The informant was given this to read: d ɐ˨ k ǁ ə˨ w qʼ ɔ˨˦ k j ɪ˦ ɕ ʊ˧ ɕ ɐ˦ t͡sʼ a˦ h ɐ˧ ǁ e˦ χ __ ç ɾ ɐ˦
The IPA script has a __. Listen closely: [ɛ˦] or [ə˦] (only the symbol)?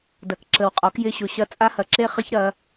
ə˦